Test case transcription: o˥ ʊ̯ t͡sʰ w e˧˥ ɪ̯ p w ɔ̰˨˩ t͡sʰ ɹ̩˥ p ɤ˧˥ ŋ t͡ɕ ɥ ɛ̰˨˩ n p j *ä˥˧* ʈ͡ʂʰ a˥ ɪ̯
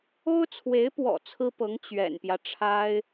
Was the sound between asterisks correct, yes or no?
no